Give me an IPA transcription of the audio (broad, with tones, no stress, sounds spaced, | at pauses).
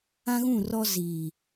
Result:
ã˦ ɣ ũ˦˨ r ɔ˦ z iː˨